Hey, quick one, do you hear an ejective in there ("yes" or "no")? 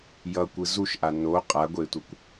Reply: yes